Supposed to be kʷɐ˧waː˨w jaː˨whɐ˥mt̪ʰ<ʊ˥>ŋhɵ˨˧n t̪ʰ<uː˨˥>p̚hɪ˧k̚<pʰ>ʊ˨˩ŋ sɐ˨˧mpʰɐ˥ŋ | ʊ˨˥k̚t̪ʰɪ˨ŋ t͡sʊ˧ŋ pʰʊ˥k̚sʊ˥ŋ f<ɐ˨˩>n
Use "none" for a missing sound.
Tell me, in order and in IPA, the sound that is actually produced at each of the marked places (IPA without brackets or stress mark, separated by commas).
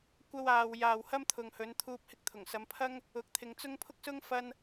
ʊ˨, uː˧, t̪ʰ, ɐ˥